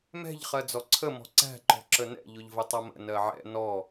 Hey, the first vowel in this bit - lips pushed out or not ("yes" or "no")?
no